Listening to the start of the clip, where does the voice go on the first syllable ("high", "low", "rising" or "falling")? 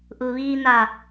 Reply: low